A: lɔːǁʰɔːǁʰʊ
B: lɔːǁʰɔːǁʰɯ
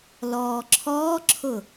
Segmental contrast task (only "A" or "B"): A